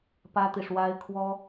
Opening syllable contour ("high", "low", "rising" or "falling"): high